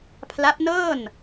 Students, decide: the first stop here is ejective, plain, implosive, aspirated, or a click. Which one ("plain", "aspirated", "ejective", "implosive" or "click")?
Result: aspirated